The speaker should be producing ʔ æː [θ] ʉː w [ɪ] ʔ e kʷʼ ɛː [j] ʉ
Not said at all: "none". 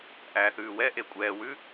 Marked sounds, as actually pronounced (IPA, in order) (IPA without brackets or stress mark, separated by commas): θ, ɛ, w